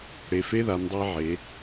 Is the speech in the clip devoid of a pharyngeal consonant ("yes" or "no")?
no